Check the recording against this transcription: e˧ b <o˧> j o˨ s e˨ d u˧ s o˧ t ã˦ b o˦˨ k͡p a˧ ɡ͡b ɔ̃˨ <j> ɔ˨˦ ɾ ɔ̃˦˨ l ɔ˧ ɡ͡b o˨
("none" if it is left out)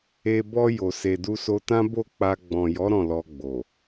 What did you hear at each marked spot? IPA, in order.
ɔ˧, j

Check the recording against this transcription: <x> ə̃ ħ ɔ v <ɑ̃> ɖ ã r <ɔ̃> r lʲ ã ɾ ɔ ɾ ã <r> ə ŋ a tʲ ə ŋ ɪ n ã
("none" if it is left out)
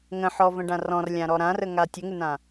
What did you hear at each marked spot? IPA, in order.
ŋ, ə̃, ɔ̃, r

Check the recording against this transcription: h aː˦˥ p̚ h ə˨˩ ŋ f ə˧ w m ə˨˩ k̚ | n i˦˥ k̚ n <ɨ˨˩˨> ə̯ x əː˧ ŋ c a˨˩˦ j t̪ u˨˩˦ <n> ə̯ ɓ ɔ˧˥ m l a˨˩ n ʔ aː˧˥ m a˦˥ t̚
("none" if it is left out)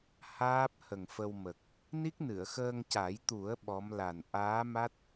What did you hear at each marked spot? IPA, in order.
ɨ˨˩˨, none

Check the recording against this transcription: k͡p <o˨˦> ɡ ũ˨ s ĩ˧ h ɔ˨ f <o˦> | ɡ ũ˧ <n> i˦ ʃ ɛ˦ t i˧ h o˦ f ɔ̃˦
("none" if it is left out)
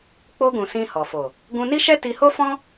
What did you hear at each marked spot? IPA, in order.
o˧, o˨, n

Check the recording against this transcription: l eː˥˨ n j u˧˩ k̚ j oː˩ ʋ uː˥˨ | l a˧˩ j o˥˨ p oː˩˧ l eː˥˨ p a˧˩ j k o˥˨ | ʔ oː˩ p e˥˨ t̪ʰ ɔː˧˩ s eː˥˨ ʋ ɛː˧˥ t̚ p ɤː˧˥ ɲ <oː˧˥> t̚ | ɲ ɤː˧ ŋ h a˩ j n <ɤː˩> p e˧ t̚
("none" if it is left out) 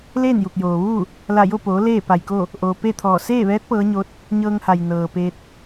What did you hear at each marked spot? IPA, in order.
o˧˥, ɤː˩

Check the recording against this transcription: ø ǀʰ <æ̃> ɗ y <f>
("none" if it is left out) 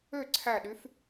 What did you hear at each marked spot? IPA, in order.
æ, f

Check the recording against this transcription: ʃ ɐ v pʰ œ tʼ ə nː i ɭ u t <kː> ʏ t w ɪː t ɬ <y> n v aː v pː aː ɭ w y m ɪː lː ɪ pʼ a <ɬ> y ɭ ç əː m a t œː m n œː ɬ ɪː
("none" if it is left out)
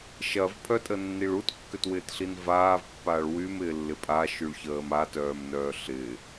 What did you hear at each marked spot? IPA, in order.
kː, i, ʃ

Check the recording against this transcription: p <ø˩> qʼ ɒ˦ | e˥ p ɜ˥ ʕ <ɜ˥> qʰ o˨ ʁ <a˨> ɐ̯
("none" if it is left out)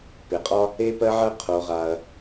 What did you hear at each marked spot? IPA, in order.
e˩, ɜ˥, a˨

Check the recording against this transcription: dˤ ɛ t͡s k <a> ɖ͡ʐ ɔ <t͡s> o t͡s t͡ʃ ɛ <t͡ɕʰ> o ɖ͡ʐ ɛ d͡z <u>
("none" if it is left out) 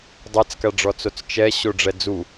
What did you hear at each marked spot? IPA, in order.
a, t͡s, ɕ, u

